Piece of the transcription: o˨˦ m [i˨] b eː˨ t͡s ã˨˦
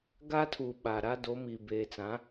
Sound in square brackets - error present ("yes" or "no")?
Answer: no